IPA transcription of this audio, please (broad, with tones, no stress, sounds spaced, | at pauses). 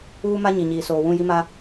uː˦ m a˦ ɲ i˨ ɲ iː˨ s oː˨ w ũ˦˨ j i˦ m a˦